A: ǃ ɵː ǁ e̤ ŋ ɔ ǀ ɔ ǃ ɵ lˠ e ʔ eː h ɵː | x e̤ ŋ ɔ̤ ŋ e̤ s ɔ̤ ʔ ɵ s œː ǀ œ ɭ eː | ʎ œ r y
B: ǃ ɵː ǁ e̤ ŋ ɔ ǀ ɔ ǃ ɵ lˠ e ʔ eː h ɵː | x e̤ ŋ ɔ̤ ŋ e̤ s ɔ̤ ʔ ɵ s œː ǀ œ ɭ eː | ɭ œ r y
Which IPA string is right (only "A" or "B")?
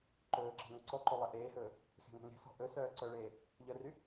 A